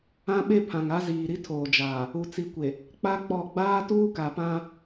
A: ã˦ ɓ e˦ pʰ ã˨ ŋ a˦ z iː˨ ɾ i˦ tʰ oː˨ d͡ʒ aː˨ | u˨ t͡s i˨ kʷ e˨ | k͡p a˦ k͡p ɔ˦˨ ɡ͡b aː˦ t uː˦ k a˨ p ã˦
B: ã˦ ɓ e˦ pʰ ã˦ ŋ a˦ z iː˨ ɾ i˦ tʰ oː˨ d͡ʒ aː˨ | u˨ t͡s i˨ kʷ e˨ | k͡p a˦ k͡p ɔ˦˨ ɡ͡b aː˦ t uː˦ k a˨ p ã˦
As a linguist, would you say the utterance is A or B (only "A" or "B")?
A